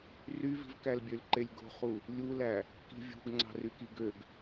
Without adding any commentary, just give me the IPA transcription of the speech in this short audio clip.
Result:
r y v i̤ v k æ l bʲ ø l ǃ e lʲ ɡ o̤ χ u | lʲ u l æ | k i̤ vʲ ṳ ɡ ŋ͡ǀ ɑ̤ r y k i ɡ ø ɡ

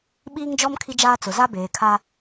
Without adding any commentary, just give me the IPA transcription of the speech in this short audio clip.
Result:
ɓ iː˦ ŋ d͡ʒ ɔ˦ m kʰ i˦ d͡ʒ aː˦ t͡s ʊ˨ z a˦ b eː˨ kʰ a˦

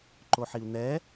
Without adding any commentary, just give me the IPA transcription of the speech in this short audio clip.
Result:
ǃ o ħ i u̯ n̪ ɛ

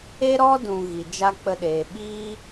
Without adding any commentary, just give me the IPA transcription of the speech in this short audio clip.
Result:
e˦ ɾ ɔ˦ d ũ˨ ɣ i˨ d͡ʒ a˦ k͡p ə˧ ɗ eː˨ ɓ iː˦

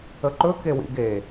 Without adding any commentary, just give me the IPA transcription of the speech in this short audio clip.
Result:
ə ǃ ɵ k e w ḭ ɡ e

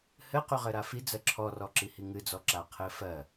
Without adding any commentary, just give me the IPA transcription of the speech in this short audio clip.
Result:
h ɘ q y ʁ ɘ ɾ a f i d͡z ɜ ǁʰ ɔ r ɔ ǁ i h i ŋ ɨ d͡z ɔ ǁ a qʰ ɘ f ɜ

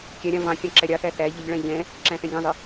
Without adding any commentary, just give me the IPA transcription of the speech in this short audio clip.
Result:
kʲ æ ɾʲ ɑ̃ v ɑ̃ kʲ ɑ̃ ǁ æ ɾʲ ɑ θ æ θ æ ʎ ə ʎ ɭ æ̃ ʎ ɛ̃ | ǁ æ̃ θ ɛ̃ ɡʲ ɑ̃ zˤ ɪ

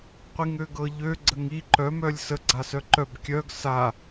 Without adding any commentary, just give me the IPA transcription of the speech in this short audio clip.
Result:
qʷ i ŋ ø ɡ ɤ ʎ ø ɡ͡ǀ ə ŋ i ǃ œ m œ lʲ s ə ɡ͡ǀ a s œ ǃ œ b kʲ œ ɡ s a

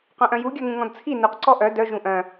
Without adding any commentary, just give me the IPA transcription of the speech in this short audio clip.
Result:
q œ̃ ʔ œ̃ j u ɡʲ œ ŋ ũ ŋ ɔ̃ d t͡sʰ i n u q ǀ ɔ ʔ œ d œ ʒ ũ ʔ œ̃

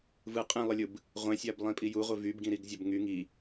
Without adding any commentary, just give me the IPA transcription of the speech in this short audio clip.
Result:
v ɯ qʼ ĩ lˠ ɯ lʲ ɯ b | ʁʷ ẽ sʲ æ b lˠ ĩ pʼ i j u ʁʷ e v y b ɡ ĩ ɾ i ɡ zʲ ɑ b ŋ y ŋ i

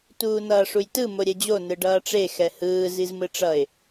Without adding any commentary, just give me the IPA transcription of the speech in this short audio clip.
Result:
t uː n ʌː ʂ u j t ɯ m o ɾʲ ɛ d͡ʑ o n ɯ ɖ ʌː ʈ͡ʂ e x ɛ h ɯː z i z m ɯ ʈ͡ʂ ʌ ɪ̯

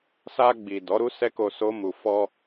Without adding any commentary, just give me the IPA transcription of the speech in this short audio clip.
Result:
s a˧ ɡ͡b i˨ d ɔ˨˦ ɾ u˦ s ɛ˦ k o˧ s o˦ m u˧ f ɔ˧

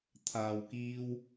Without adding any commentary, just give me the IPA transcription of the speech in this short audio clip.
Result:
t̪ʰ aː˨ w k iː˧ w

